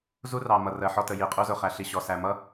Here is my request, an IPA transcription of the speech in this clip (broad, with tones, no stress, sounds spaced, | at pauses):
z u˦ r ɑ˨ m ʌ˨ r ɜ˨ ħ ɔ˧ t ə˨ j i˨ qʼ u˧ z ʊ˨ χ æ˨ ɬ i˨ ɕ ɔ˨ s æ˨ m ʌ˦